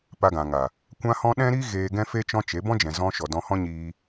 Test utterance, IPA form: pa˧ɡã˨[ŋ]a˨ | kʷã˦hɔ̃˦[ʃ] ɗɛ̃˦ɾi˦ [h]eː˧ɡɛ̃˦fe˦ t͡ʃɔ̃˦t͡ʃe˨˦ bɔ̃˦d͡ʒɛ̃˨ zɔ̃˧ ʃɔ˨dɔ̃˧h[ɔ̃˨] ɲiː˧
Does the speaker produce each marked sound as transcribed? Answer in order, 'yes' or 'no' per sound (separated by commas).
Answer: yes, no, no, no